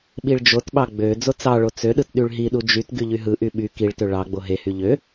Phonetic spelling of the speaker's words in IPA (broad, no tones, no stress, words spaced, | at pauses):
ɓiɭd͡ʒotɓɑ ɡ͡bø d͡zot͡sɑɭo t͡søɗɯt ɗyɭɦiɗu d͡ʒyt ɡyʎyɦɯʔy ɓy kiɭtø ɭɑ ɡ͡boɦehy ʎø